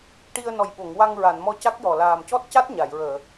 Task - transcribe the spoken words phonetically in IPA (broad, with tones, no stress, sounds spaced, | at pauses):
ʈ i˧ ə̯ n ɔ˨˩ j ɓ o˨˩˨ ŋ w a˧ ŋ ɹ a˨˩˨ n m ɔ˧ c a˦˥ k̚ j ɔ˨˩ l aː˨˩ m c ɔ˦˥ t̚ c a˦˥ t̚ ɲ a˨˩˨ j ɹ əː˨˩˨